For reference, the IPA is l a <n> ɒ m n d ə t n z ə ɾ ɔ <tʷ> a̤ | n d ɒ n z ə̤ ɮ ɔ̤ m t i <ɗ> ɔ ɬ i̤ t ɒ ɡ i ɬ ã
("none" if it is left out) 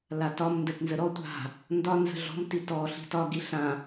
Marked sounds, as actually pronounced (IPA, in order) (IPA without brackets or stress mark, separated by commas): t, tʷ, t